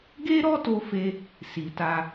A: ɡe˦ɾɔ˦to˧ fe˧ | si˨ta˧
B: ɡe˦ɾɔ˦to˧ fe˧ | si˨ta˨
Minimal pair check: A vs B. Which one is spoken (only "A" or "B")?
A